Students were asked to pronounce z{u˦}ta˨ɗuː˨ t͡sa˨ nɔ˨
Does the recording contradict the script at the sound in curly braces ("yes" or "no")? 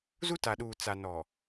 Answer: no